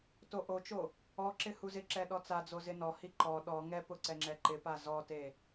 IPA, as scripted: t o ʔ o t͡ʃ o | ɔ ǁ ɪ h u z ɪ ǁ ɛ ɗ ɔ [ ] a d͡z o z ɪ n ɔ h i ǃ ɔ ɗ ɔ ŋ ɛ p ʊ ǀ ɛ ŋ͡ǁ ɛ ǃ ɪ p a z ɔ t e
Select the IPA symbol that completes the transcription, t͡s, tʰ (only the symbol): t͡s